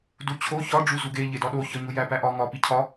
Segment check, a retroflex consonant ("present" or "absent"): present